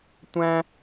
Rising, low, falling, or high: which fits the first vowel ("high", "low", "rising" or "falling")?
high